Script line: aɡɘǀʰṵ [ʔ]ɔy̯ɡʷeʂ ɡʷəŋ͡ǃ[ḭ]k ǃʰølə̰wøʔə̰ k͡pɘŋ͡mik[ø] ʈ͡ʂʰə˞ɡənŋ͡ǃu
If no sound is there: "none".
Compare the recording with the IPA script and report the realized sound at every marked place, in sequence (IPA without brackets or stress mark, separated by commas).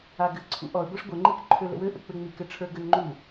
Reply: ʔ, i, ɘ